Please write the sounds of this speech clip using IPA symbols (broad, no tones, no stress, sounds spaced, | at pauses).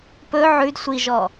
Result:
p ɵ ʕ ʉ d sʷ i ʒ ɔ